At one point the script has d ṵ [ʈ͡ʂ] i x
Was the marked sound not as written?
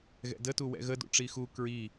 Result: no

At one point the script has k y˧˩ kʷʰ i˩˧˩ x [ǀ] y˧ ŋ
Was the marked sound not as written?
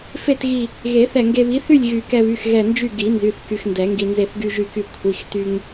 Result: yes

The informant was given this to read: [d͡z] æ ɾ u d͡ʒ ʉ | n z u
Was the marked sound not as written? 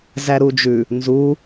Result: yes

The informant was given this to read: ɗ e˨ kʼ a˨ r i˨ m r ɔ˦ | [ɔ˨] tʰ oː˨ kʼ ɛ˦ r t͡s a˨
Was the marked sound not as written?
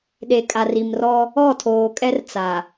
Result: yes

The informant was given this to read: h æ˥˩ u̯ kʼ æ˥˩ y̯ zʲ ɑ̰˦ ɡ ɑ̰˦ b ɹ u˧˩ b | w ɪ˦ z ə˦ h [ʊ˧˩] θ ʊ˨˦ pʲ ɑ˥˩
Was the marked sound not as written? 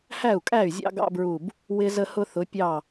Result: yes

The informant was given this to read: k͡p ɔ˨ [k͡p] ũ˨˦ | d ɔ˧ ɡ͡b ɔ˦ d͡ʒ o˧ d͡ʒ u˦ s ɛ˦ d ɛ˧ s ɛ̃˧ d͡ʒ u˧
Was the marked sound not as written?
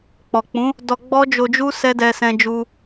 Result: no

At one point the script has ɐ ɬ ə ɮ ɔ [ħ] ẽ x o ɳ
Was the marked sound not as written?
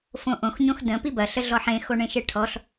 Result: no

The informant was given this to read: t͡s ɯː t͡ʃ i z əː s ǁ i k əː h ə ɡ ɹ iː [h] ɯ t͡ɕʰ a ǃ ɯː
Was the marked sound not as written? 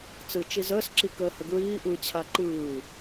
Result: yes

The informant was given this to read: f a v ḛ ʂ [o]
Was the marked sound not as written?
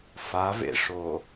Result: no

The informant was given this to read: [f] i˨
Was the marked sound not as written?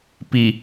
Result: yes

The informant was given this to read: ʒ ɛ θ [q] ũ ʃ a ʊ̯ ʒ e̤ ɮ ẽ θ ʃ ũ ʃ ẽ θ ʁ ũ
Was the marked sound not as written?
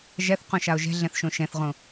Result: no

